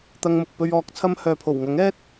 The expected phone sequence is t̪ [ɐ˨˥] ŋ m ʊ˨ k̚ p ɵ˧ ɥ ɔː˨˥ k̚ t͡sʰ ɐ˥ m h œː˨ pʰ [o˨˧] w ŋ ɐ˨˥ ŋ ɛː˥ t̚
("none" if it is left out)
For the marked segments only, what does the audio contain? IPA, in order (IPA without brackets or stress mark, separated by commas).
ɐ˧, o˨˩